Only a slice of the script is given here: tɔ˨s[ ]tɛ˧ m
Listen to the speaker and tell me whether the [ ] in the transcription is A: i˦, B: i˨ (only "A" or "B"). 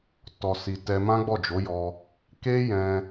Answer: B